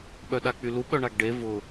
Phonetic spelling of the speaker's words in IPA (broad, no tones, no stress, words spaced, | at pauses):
ɓœɗak͡pylu ɓœɳaɡɖe vʊ